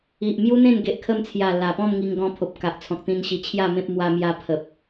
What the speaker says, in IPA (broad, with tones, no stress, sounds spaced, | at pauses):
i˨ ʔ m j u˦ n̪ ẽ˥˧ n ɡ e˨ ʔ kʰ ə˧ m t͡sʰ j a˨˩ l a˨˩ p ɔ̃˥˧ m ŋ i˧ ŋ ɡ ɔ̃˧ pʰ o˨ p̚ k a˨ ʔ t͡sʰ ɔ̃˨ k̚ t̪ ĩ˧ n ɕ i˧ t͡ɕʰ j a˥˧ m ẽ˦ p̚ m w a˧ m j a˧ pʰ ə˨ p̚